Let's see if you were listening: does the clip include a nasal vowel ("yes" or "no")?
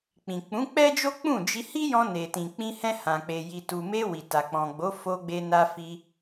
yes